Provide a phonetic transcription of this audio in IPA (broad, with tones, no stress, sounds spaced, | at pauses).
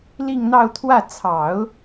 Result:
l i˥˧ ŋ n̪ ɑ˥˧ ʊ̯ t̪ʰ w ä˥˩ t͡sʰ ɑ˨˩˦ ʊ̯